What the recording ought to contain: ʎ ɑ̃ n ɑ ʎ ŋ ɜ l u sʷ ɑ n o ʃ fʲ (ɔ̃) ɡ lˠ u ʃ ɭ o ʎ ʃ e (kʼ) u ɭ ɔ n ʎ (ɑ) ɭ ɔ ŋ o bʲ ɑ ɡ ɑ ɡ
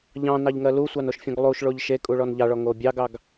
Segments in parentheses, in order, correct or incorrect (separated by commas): correct, correct, correct